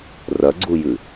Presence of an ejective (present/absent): absent